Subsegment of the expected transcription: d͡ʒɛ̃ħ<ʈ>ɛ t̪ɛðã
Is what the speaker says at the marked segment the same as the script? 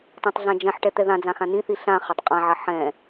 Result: yes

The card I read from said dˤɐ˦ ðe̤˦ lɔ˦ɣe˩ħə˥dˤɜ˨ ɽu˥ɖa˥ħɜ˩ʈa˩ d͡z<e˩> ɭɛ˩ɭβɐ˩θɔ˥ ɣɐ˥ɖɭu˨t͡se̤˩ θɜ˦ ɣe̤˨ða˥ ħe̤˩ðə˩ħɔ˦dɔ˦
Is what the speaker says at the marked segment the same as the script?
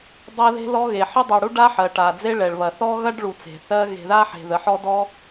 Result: no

